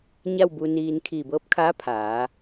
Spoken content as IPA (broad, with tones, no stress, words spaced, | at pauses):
ɲa˥˨wbu˧niː˧n kʰiː˧˩bɤː˧˥p̚kʰaː˧˥ pʰaː˩˧